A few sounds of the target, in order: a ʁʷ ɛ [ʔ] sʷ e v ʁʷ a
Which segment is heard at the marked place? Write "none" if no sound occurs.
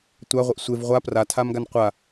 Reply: ʔ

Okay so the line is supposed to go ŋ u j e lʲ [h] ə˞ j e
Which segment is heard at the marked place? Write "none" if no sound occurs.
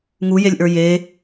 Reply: ʔ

